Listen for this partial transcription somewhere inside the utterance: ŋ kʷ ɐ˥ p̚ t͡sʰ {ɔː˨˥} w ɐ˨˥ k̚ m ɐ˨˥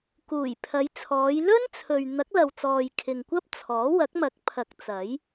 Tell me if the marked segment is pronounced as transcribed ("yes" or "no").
yes